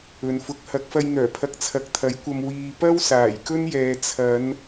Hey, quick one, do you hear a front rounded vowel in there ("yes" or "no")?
yes